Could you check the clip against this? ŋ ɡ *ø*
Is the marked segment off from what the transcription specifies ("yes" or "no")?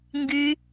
yes